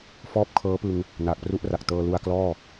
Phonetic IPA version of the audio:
fɔː˥˩p̚kʰɤː˦˥pɯ˧ŋ | naː˨˩k̚pru˦˥ʔra˨˩k̚ tɤː˧ lu˧a̯klɔː˥˩

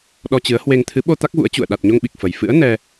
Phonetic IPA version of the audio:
ɗɔ˧t͡ɕɨ˨˦ə̯hwe˧ŋ t̪ʰɨ˨˦ɓo˧ t̪a˦˥k̚vṵ˧˥ə̯t͡ɕṵ˧˨ə̯ ɗa˨˩t̚ɲo˧ŋɓi˨˩k̚ fə˨˩j fɨ̰˧˥ə̯ nɛ˧

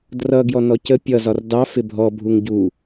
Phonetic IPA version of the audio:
drʌ ɡjɔnɔcə pʲʌ zɒrdɑ fɪbʱɔ bʱuŋɟu

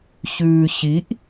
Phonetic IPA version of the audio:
çʉːçiʔ

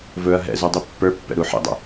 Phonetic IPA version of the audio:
vɵɐ̯ ɦɛ̰ zudˤipːə˞pːɛ̰ ɾuħḭdˤə̰

